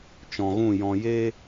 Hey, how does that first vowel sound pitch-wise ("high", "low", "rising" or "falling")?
low